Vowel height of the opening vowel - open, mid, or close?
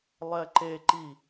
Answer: mid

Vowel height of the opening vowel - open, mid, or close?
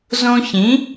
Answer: mid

